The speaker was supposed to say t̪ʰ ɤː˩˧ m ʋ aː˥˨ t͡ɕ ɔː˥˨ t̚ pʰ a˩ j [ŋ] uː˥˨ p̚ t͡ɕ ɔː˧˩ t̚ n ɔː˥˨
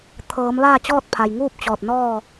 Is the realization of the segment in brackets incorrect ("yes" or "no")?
no